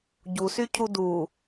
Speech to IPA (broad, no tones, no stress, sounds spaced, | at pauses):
ɟ u s y cʰ u d u